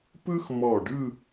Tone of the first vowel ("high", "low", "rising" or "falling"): high